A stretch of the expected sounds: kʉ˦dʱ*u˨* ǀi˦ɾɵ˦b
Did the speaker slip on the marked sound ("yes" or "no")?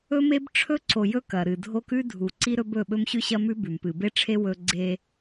no